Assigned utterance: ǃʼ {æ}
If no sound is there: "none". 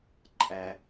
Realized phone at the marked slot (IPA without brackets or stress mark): æ